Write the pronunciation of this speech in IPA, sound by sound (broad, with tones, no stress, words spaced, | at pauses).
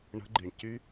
ɳə̤˧˥ɡ͡ǃi˩ɳcy˥